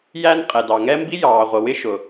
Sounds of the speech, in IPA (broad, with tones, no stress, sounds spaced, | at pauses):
j æ˥ n qʼ ɛ˩ d ɑ˩ ŋ ɛ˥ m b i˥ j ɑː˩ ʁʷ ə˩ w ɪ˥ ʃ ʊ˩